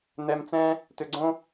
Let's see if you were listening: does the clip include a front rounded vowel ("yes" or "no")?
yes